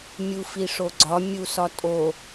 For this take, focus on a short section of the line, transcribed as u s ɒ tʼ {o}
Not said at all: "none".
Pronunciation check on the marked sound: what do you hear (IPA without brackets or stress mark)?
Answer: o